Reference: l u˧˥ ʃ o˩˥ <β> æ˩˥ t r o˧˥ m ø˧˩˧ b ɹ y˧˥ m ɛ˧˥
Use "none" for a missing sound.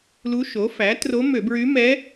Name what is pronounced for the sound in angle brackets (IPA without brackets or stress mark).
f